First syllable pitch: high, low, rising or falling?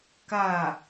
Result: falling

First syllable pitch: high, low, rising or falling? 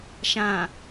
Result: low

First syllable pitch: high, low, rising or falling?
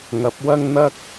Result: rising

